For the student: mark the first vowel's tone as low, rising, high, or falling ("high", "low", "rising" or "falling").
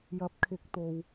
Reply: rising